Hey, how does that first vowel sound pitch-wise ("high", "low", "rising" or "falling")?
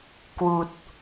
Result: low